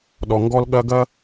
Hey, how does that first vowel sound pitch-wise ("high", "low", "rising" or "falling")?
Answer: low